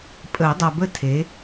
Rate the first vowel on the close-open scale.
mid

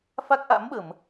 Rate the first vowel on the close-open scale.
open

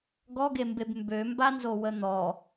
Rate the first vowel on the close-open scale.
mid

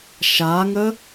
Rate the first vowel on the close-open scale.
open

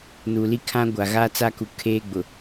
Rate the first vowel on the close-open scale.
close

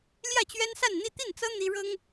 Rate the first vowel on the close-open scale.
open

